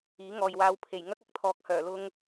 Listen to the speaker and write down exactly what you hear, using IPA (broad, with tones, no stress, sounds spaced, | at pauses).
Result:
iː˨˥ ŋ ɔː˨ j w aː˧ w pʰ e˨˩ j ŋ ɐ˥ k̚ ɐ˧ k̚ t̪ʰ ɔː˨ k̚ h œː˨˩ l ʊ˧ ŋ